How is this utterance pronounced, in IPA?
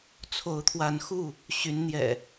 t͡sʰ o˨˦ ʊ̯ t̪ʰ w a˨˦ n x u˥˨ | ɕ y˨˦ n n̪ j ɛ̰˨˩

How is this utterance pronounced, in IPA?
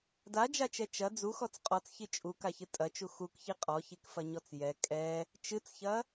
d a d͡ʒ a t͡ʃ ɛ t͡ʃ ɐ d͡z u x ɔ t͡s qʼ ɔ t͡s ç i t͡ʃʼ u k a ç ɨ tʼ ɐ t͡ʃ u x u k ç i qʼ ɔ ç i k f ɐ ɲ ɔ t͡s j ɛ kʼ ɛ | t͡ʃ ɨ t͡s ç ɐ

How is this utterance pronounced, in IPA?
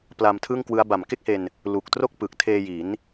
p l a˧ m tʰ ɯ˥˩ ŋ k w ɯ˦˥ a̯ b a˨˩ m k e˥˩ k̚ h e˧ n | l u˨˩ k̚ t r o˥˩ k̚ p ɯ˨˩ k̚ tʰ eː˧ j i˩˦ n

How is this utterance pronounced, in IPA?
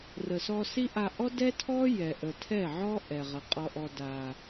r ə˨ s ɔ˧ s i˦ ʔ a˧ ʔ ɔ˦ d ɛ˦ tʰ ɔ˦ j ɛ˨ ʔ ə˨ tʰ ɛ˦˨ ʕ ɔ˦ ʔ ɛ˨ ʁ ə˨ qʼ ɔ˧ ʔ ɔ˧ d a˨

